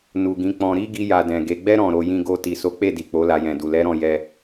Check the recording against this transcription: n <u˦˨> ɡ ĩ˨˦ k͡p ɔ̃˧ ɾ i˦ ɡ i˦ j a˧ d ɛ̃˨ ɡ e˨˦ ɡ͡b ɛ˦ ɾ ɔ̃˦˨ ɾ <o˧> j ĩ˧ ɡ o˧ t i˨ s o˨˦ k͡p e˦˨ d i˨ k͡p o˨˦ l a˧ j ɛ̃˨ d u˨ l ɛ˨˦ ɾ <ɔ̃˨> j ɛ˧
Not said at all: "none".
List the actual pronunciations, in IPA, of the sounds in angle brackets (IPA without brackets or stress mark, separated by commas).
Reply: u˨, o˧, ɔ̃˦˨